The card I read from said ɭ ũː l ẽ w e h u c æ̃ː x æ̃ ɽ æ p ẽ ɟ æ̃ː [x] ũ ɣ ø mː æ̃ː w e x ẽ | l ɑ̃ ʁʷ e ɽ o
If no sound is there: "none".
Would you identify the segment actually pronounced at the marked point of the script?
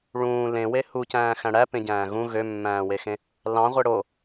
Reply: ɣ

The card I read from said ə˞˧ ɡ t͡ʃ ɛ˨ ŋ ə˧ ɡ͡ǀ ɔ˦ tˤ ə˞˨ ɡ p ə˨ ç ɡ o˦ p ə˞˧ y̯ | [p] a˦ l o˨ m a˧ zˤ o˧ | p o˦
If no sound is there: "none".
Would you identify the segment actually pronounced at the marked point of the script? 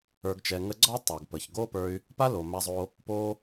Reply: p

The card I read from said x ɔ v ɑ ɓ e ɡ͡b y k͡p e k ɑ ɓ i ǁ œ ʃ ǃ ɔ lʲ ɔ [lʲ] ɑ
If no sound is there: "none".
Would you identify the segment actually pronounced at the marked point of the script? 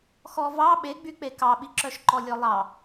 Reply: lˠ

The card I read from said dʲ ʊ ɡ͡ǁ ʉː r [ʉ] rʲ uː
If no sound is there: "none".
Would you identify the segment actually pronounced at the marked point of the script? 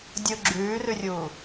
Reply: ʉ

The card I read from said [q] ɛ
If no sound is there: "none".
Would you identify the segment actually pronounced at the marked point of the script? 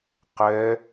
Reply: q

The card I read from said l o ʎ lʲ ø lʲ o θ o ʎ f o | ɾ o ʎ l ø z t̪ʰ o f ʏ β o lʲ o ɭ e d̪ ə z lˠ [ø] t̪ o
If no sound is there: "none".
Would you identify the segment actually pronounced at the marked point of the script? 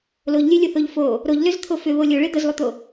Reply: y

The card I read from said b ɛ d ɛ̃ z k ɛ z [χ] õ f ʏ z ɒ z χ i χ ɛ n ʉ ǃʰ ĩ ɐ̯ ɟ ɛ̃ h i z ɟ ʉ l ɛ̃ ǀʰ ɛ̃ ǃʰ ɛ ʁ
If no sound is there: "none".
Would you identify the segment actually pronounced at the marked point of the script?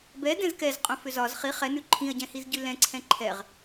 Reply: qʼ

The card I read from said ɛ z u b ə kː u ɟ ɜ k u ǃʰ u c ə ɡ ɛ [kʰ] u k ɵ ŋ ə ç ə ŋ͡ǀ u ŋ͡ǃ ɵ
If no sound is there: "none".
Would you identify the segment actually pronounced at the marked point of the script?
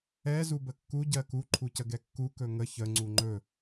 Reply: kː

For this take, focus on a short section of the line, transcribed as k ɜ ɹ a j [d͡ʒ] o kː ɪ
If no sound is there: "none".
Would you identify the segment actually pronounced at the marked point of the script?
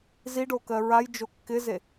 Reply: d͡ʒ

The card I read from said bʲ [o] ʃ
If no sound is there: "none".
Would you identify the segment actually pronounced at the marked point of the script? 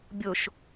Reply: o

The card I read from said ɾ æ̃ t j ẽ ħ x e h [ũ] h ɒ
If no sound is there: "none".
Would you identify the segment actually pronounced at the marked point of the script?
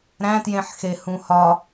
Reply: ũ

